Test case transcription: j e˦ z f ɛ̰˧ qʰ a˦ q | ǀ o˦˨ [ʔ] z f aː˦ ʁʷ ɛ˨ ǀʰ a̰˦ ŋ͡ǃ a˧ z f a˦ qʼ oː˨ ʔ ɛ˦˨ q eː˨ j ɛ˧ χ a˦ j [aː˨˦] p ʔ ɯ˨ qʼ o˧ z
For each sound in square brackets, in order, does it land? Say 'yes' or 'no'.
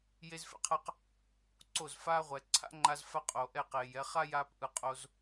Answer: no, no

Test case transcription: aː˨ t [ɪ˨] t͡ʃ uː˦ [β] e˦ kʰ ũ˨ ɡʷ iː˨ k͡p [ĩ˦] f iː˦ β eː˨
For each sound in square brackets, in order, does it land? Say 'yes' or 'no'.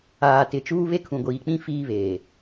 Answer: yes, yes, yes

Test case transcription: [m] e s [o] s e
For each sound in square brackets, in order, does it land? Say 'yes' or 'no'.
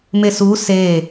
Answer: yes, no

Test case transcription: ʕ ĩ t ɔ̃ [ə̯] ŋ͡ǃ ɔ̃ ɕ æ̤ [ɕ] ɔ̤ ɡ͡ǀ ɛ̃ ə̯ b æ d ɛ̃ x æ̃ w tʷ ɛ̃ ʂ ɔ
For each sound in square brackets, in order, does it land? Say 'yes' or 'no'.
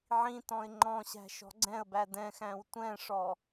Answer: no, no

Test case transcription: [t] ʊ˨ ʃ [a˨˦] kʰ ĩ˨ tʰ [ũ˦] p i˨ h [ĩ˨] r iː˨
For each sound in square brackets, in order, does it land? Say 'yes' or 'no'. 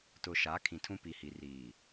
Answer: yes, yes, yes, no

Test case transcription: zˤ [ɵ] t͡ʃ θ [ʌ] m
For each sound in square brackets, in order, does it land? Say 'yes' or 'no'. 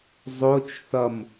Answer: no, yes

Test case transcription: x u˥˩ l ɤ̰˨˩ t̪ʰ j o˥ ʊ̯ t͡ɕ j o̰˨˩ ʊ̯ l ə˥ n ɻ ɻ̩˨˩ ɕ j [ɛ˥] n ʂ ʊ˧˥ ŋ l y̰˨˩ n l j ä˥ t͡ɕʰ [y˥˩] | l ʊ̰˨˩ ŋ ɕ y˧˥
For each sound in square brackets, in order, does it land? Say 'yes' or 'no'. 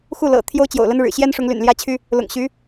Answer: yes, no

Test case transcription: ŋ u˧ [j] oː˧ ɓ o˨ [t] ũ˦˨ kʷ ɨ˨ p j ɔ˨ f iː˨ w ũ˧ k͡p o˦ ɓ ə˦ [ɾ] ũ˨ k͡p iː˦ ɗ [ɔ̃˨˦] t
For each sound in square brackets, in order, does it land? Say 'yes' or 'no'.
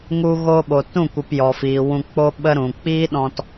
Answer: no, yes, yes, no

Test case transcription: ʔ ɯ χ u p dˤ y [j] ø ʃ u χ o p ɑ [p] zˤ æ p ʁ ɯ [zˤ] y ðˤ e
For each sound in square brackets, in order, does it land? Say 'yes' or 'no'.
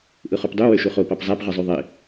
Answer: no, yes, yes

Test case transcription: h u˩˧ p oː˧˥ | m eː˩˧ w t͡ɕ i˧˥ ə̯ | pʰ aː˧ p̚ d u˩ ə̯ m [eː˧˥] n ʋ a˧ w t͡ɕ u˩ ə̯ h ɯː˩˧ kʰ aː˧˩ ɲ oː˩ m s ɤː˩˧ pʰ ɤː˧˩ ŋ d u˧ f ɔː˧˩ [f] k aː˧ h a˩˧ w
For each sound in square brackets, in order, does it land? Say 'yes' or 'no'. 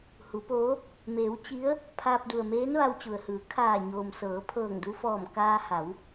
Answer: yes, no

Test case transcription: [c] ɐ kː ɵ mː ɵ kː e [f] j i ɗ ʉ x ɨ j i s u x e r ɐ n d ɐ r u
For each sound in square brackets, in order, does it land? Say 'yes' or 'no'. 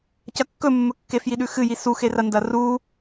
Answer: yes, yes

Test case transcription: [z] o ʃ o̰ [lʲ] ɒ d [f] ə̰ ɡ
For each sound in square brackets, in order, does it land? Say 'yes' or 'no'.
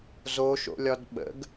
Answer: yes, yes, no

